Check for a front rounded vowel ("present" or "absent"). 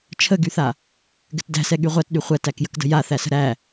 present